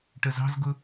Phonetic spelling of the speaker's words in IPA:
ʈ ə z ɑ̤ z ɡ ʊ

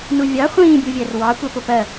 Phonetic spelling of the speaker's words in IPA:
n u vʲ ɑ χʷ ĩː bʲ u vʲ æ r w ɑ kʷ ɛ p ʊ p ɜ

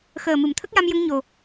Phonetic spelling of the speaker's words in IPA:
x əː˨˩ m ɨ˨˩˨ m t̪ʰ ə˦˥ k̚ j a˧ m j ə˧ ŋ ɲ o˨˩

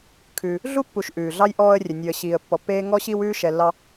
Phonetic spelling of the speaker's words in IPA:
kʰ ʉ˨ | ɮ u˥ pː u˨ ʃ ʔ ʉː˩ ɮ ɑ˥ j ʔ ɔː˦ ə̯ rʲ ɘ˩ nʲ ʉ˩ ə̯ ɕ iː˩ ə̯ pː ɔ˨ pː eː˥ ŋ ɔ˥ ɕ i˦ w ʉː˦ ʃ ɛ˨ lː ɑ˦

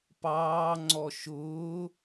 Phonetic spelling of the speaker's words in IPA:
p ɑː ŋ͡ǀ ɔ ʃ ʊː

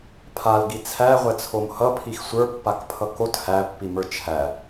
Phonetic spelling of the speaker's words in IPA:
pʰ a l ɡ i t͡sʰ æ ʁʷ ɛ t͡sʰ o m h ʌ pʰ i x sʷ ə˞ pː a k pʰ ʌ k o t h æ pː i m ə˞ t͡ʃʰ æ

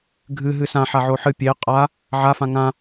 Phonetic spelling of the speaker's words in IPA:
ɡʱ ɨ ɦ ɨ s ã ħ a ʕ o ħ ɨ pʲ e qʼ a | ʕ a f ã ŋ ã

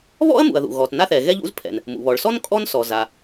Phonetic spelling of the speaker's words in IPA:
β ɔ̰˥ ɐ̯ m ṵ˩ ɐ̯ ð ṵ˩ ɣ ɔ˩ t n a˥ θ ɛ˩ ɣ ɛ˥ ʎ ṵ˥ z pʰ ɛ̰˩ n | m ṵ˩ β ɔ˩ ɭ s ɔ˥ n kʼ ɔ˥ n s ɔ˩ z a˩

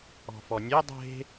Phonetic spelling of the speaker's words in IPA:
ɔ̤ f ɔ nʲ e dˤ e̤

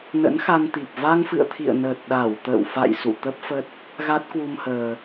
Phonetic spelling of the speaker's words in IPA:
n ə̰˧˥ n x a˧ n t̪ i˨˩ p̚ v a˧ ŋ f ɨ̰˧˨ ə̯ t̪ʰ ḭ˧˨ ə̯ n əː˨˩ t̚ ɗ a˧˩ w t̪ ə̰ː˧˨ w f a̰˧˨ j s ṵ˧˨ t̪ ə˦˥ p̚ f ə˦˥ t̚ | ɣ a˦˥ t̚ k w u˧ m h əː˨˩

